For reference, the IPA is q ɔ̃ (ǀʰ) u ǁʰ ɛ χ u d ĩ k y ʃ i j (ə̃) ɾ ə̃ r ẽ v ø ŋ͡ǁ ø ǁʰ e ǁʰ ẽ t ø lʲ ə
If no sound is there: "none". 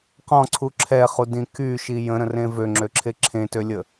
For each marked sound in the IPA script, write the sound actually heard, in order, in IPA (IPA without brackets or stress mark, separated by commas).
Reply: ǀʰ, ə̃